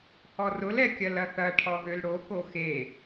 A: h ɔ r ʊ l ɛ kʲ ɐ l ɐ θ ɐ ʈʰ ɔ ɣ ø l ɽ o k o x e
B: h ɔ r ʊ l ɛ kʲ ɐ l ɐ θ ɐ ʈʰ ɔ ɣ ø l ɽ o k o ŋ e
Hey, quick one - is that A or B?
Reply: A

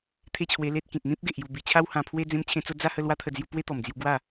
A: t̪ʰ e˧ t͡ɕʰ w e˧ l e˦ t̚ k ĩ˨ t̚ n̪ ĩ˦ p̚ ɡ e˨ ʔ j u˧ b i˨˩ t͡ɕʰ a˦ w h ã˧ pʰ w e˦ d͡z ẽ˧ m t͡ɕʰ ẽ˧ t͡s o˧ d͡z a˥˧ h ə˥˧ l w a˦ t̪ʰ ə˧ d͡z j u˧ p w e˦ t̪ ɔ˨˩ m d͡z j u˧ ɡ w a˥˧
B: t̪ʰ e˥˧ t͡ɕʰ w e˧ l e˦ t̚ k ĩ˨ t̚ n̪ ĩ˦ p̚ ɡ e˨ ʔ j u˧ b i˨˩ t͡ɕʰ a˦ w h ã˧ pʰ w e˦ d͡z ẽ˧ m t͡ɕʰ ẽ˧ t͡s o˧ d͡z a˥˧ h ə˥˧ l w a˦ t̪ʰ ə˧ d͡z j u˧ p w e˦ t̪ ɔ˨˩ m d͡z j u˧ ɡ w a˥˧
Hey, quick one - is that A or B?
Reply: B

